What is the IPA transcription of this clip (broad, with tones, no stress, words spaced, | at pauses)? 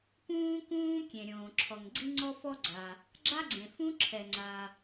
pũː˥kũː˥kʲẽ˩ ɾʲõː˩ǁʰɔ˩ŋ ɡ͡ǀi˥ŋ͡ǀɔ˥fɔ˥ɡ͡ǀa˩ | ɡ͡ǁa˥ɡ͡ǀẽ˩ fũ˥ǁʰɛ˩ŋ͡ǀa˩